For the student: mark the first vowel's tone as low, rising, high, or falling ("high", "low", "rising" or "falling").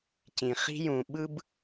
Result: low